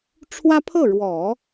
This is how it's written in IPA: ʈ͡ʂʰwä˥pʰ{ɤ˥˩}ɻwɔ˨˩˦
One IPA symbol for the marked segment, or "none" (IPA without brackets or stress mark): ɤ˥˩